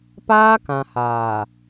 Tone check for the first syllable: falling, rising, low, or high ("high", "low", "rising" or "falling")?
high